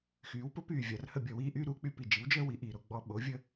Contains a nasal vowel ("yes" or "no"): no